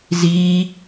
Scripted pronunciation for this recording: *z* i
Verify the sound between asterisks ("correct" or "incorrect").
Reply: correct